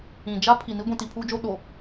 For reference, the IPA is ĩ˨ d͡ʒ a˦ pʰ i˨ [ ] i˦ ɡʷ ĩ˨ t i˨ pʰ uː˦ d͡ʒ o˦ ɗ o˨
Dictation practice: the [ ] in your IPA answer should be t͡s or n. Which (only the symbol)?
n